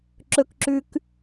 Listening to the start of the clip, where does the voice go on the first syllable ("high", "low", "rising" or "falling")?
high